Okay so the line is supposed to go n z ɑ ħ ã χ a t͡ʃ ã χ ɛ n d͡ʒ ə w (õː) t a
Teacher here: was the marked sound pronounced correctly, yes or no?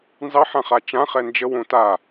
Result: no